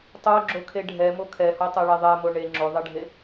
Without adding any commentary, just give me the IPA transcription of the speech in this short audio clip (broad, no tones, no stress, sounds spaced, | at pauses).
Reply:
tˤ o ɡ͡ǁ o kʰ e ɖʱ ɛ m o kʰ ɛ h o tˤ ɛ ɭ e ðˤ ɛ m o ɳ e ŋ͡ǁ o ðˤ ɛ ɖʱ e